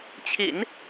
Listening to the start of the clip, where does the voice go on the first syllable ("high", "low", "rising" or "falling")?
low